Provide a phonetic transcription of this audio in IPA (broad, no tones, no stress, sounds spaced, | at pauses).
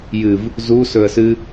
j ɨ v | z u s ɵ ə̯ s ɨ